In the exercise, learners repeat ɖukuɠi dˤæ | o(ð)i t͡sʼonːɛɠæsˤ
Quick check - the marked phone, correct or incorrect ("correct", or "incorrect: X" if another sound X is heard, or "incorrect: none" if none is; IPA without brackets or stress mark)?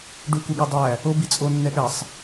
incorrect: b